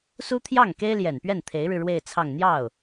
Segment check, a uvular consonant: absent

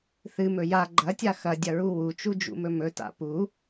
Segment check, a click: present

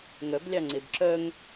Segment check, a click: present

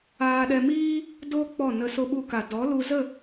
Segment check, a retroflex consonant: absent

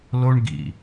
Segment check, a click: absent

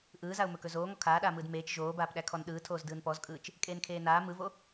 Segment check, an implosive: present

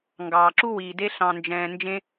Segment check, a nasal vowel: present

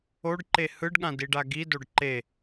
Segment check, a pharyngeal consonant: absent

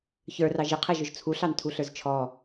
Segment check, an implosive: absent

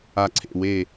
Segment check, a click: present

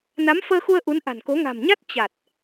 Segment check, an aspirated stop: absent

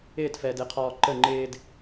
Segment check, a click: present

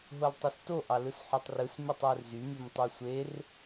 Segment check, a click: absent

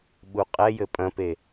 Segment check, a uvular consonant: present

